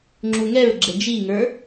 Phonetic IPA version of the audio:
ŋ͡ǁ u ŋ ɛ ɹ ɡ͡ǁ ɛ d͡ʒ i ŋ ə˞

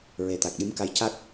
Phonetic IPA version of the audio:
ɹ e˨˩ t̪ a˨˩ k̚ ɗ i˧˥ m k a˧˥ j c a˦˥ k̚

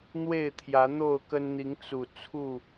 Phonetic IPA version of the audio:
n̪ w e˥˨ ɪ̯ t̪ʰ j ä˨˦ n̪ o˥˨ ʊ̯ k ə˦ n n̪ i˨˦ ŋ t͡s u˨˩ t͡sʰ u˥˨

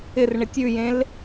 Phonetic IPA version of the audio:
ɪ r ɳ ɪ tʲ ʉ j ẽ l

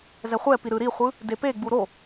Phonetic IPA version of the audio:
z ɛ χʷ ɛ p i ɾ ɯ ɾ i χʷ ɯ | d e p e ɡ͡b u ɾ o

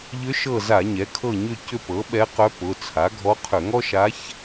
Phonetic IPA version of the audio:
ʎ ʏ˧˥ ʃ ɤ˦˨ z a˧˩˧ ɲ ɛ˩˥ kʰ ɤ˦˨ ɲ ʏ˦˨ c ʏ˦˨ p ɤ˩˥ ɓ ɛ˧˥ q œ˧˥ p ʊ˩˧˩ t͡sʰ a˩˥ ɡʱ ɔ˧˥ qʰ ʏ˧˩˧ ŋ ɔ˥ ʃ a˧˥ ç

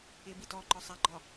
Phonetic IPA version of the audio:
ɪ b i t ɔ ǃ ɒ sˤ a ɡ͡ǃ ɒ

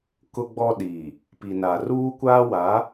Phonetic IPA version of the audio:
k ʊ˦ ɡ͡b ɔ˦ ɗ iː˨ | p i˨ n a˨ r uː˦ kʷ aː˦ w a˨˦

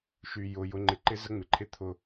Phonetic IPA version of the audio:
ʃ y˧ j ʊ˧ j ʊ˦ ŋ͡ǃ ɪ˦ ǃ ɪ˦ z ə˦ ŋ͡m ɪ˧ ǃʰ ɪ˦ t̪ʰ ʊ˧

